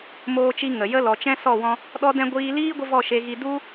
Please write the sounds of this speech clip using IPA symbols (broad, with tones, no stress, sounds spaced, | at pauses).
m oː˧ t͡ʃ i˧ ŋ ə˨ j ə˦ l ɔ˨ t͡ʃ ɛ̃˦ s ɔ˦˨ w ɔ̃˧ | ɗ ɔ˦ d ɛ̃˦ ɡʷ iː˧ l iː˦ ɡʷ ə˦ v ɔ˦˨ ʃ e˧ ɣ i˧ d u˦